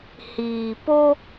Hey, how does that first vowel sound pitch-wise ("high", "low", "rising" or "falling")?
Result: low